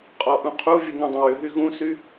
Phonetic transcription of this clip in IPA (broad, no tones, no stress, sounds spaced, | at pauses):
qʼ ɔ ʔ ũ qʰ u vʲ ə ŋ ũ dˤ ə̃ w ʏ ɦ y ɣ ũ s y